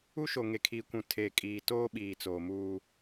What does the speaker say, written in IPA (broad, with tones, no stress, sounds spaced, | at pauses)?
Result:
u˦ ʃ o˨ ŋ e˨ kʰ iː˨ kʷ ũ˨ tʰ eː˨ kʼ iː˨ t oː˦ ɓ iː˨ t͡s oː˨ m uː˦